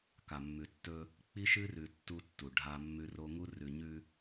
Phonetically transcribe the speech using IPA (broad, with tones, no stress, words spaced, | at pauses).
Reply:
ka˨mːʉ˨tːɵ˦ | k͡pi˦ʃɨ˦rʉ˨ tːu˦tːu˨ ɖʱa˦mːʉ˦ro˦ ŋu˦rʉ˨ɲʉ˦